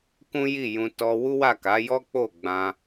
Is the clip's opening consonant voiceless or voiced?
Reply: voiceless